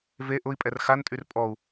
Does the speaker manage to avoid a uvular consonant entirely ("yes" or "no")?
yes